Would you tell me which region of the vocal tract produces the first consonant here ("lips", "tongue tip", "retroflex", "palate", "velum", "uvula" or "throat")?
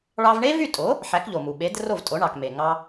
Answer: retroflex